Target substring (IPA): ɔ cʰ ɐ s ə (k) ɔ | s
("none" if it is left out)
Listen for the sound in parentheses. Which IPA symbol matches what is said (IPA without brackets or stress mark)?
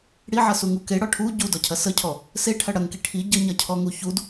cʰ